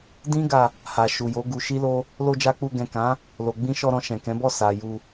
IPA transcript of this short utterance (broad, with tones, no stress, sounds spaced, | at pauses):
d ĩ˦ ɡ a˧ | h a˨ ʃ u˨ j o˨˦ ɡ u˧ ʃ i˦ l o˦ | l o˧ d͡ʒ a˧ k͡p u˧ ɡ ɛ̃˨ k ã˨˦ | l o˨ ɡ͡b ĩ˧ ʃ ɔ˧ ɾ ɔ̃˧ ʃ ɛ̃˨ k ɛ̃˨˦ b ɔ˦˨ s a˨ j u˧